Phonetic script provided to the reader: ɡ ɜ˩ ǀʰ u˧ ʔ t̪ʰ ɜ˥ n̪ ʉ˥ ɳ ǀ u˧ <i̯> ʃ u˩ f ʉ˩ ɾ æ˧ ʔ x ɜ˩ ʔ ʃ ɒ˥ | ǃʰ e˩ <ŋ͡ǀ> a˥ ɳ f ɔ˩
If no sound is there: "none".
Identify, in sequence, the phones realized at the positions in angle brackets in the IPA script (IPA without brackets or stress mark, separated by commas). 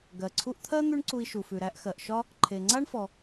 i̯, ŋ͡ǀ